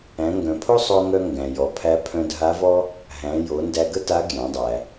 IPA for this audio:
æ̃˩˧ ŋ ɡ œ̃˩ pʰ o˥ sˤ o˧ ŋ œ˧ ŋ ɡ æ̃˩ j ɔ˩˧ pʰ æ˧˥ pʰ œ̃˧ dʱ a˧˥ v ɔ˥ | ɦ æ̃˩˧ j o˩˧ n d æ˧ ɡ ə˥ t a˧˥ ɡ j æ̃˩˧ dˤ æ˩

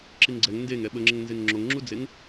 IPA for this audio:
ǁ i ŋ ɡ͡ǀ ɛ ŋ n d e ŋ ɛ ɓ ə ŋ͡ǁ ə ŋ n z e ŋ ŋ͡ǁ o ŋ ŋ͡ǁ u d͡z e ŋ

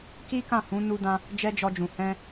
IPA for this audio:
k i˦ k ã˦˨ h ũ˨˦ n u˧ d ã˧ | d͡ʒ ɛ˦ d͡ʒ ɔ˧ d͡ʒ ũ˨ h ɛ̃˧

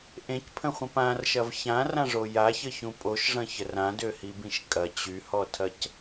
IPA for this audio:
ʔ ẽ c pʰ ə̃ χʷ ə̃ p ã r ʃ ɐ v ç ã r ã ʐ o j a ç ə ç ũ pʼ o ʃ ʐ ɐ̃ ç ə r ã d ø h i b ĩ ʃ kʼ ɐ t͡ɕ y h ɔ tʰ ɐ c

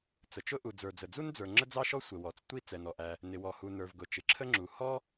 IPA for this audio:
t͡s ə˩ t͡ʃ ʊ˥ ʔ u˩ d͡z ə˞˩ d͡z ə˩ d͡z u˥ n d͡z ə˞˩ ŋ͡ǁ ə˥ d͡z ɑ˥ ʃ ɔ˥ sʷ ə˩ w ɔ˩ t͡s tʷ i˥ t͡s ɛ˩ n ɔ˩ ʔ æ˩ | n ɪ˩ w ɔ˩ h u˩ n ə˞˩ v ɡ ʊ˩ t͡ʃ ɪ˩ ǁʰ ə˥ ŋ͡ǁ u˩ h ɔ˥

